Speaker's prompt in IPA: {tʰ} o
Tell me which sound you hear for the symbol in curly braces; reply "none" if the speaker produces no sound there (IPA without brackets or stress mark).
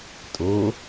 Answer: tʼ